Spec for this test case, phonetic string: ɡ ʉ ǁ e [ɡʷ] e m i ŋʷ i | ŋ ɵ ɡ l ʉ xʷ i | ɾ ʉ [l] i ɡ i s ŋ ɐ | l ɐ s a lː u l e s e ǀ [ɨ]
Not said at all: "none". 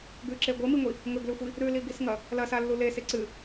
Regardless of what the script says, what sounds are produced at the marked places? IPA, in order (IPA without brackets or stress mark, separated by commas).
ɡʷ, l, ɨ